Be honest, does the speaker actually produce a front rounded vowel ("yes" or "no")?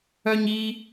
yes